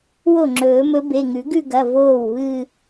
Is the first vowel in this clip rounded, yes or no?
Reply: yes